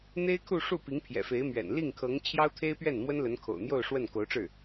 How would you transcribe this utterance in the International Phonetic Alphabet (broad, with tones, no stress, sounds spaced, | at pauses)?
n̪ e˥ ɪ̯ kʰ u˥˧ ʂ u˥˩ p i˧˥ ŋ pʰ j ɛ̰˨˩ f e˧˥ ɪ̯ m ɥ ɛ̰˨˩ n l i˥˩ ŋ kʰ ɤ˧˥ ŋ t͡ɕʰ j ɑ˥ ʊ̯ t̪ʰ e˥ ɪ̯ p ɥ ɛ˥˩ n m w ə˥ n l ə˧˥ n kʰ o̰˨˩ ʊ̯ n̪ j o˥˧ ʊ̯ ʂ w ə˥˩ n k o˧˥ ʊ̯ ʈ͡ʂ ɻ̩˥˩